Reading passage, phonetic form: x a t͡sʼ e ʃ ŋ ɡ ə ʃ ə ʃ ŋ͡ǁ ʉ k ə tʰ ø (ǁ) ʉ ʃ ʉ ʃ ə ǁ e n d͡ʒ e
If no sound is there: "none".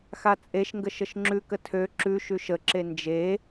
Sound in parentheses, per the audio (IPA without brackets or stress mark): ǁ